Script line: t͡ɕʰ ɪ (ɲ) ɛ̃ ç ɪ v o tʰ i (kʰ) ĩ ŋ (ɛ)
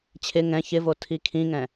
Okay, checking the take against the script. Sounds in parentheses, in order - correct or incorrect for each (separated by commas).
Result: incorrect, correct, incorrect